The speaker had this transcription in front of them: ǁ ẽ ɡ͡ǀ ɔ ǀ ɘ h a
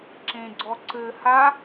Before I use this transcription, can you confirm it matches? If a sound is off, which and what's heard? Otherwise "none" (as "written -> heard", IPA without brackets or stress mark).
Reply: none